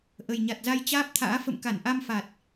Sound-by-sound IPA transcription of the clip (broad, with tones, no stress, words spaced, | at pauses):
ʔə˨˩jɲa˨˩t̚za˧j t͡ɕaː˦˥p̚t̪ʰa̰ː˧˥ fə̰˧˨mka˧˩nʔa˧mfa˨˩t̚